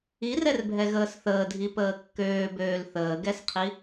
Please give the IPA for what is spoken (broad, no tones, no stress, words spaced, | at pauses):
irɛrbʱɛ ɣəːsθəːdʱi pəːkːøːbøːl θəːɡɛsqʰi